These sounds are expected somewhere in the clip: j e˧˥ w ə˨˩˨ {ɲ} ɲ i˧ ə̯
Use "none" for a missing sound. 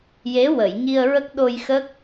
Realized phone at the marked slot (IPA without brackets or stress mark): j